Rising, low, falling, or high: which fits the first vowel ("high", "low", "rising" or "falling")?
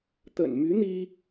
low